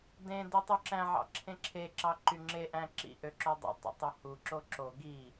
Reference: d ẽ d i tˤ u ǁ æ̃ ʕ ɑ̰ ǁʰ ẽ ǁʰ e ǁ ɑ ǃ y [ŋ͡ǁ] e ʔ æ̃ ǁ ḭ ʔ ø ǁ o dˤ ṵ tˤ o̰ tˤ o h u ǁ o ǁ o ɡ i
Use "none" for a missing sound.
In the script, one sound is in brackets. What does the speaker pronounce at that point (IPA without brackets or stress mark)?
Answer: ŋ͡ǁ